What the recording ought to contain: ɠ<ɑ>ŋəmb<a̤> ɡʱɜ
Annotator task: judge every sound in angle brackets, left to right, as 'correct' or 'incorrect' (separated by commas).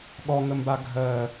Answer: incorrect, incorrect